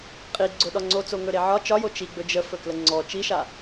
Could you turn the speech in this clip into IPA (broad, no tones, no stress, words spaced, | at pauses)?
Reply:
qʼi ɡ͡ǀʊɗɒ ŋ͡ǀot͡soŋɵɾe ʕɒ t͡ʃɒjo t͡ʃiɡ͡bɵ d͡ʒəfɵklə ŋ͡ǀɔ t͡ʃiʃa